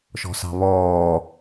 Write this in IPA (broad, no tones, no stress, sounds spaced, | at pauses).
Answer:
ʃ ɔ̤ s ɑ̤ β ɔː